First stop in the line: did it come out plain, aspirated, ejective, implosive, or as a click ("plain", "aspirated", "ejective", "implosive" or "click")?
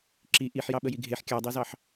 click